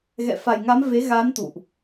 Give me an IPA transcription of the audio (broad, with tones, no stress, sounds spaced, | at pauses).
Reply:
ɣ ɛ̰˧˨ f a˨˩ j ŋ a˨˦ m v e˨˦ ɣ a˨˦ n t̪ ṵ˧˨ ʔ